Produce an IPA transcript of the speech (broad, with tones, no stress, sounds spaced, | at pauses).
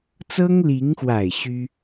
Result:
t͡s ɤ˥ ŋ l i˧˥ ŋ x w a˨˩ ɪ̯ ɕ y˥